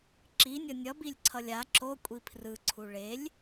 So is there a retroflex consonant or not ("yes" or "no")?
yes